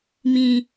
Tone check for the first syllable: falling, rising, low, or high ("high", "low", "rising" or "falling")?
low